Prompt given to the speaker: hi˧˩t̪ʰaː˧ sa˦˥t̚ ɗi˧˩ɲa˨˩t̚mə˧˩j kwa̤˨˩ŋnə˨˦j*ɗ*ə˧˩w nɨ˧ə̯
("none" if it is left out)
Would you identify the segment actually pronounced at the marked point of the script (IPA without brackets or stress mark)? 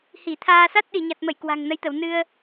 t̪